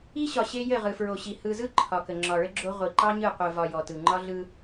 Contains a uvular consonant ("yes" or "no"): yes